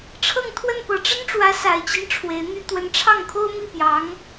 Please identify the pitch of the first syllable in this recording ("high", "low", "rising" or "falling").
falling